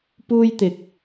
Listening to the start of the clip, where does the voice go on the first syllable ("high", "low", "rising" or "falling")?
high